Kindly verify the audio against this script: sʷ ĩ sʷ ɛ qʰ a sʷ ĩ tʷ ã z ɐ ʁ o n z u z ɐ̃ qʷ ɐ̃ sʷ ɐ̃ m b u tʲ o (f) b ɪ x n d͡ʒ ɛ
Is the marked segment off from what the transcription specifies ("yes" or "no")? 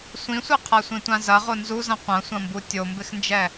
yes